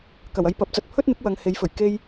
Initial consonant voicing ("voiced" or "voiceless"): voiceless